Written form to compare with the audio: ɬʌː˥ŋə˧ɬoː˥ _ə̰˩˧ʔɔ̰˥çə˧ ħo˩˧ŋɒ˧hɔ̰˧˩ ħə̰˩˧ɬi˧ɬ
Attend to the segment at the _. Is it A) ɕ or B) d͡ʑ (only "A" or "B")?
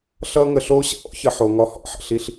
A